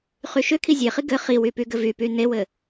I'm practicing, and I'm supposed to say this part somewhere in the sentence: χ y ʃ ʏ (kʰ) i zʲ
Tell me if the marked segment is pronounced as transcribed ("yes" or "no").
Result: yes